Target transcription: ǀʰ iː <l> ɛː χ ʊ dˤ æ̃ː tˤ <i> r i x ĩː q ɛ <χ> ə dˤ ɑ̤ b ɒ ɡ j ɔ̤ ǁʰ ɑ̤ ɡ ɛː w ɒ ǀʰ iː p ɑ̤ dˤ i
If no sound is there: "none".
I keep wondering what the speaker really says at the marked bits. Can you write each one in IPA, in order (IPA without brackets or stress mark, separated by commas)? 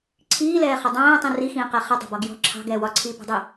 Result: l, ĩ, χ